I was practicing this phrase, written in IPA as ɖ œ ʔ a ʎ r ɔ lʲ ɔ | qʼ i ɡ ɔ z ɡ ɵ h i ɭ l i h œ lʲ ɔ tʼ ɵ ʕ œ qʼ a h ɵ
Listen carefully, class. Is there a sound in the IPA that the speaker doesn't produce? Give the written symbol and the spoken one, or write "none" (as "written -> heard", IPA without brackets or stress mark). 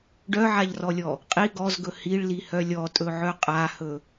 ʔ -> ʕ